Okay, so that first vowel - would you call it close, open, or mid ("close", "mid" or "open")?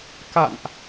open